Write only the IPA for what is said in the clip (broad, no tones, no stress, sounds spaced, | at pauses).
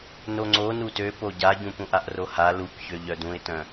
n o ŋ͡ǀ o n u t ø p o ɟ a ɟ ũ p ũ ʔ a ʔ r o h a l u k ç ø ʎ œ d ũ ɪ̯ t œ̃